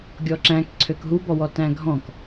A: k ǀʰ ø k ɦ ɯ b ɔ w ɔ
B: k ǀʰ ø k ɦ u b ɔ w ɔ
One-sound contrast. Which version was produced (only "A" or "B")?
B